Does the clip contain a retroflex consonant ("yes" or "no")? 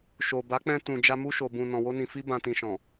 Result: no